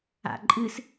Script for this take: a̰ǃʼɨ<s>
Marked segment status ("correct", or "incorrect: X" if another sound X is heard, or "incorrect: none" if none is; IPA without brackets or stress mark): correct